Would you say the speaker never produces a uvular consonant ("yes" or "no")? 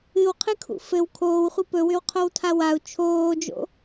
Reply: no